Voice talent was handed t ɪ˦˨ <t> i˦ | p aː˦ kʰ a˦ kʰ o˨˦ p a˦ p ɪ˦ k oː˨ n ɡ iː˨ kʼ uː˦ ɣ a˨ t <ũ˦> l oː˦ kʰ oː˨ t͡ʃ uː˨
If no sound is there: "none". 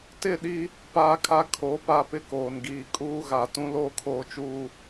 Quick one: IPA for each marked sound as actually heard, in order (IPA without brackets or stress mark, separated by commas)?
ɗ, ũ˦